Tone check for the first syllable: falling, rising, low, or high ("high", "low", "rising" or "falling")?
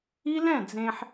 high